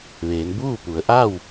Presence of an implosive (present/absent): absent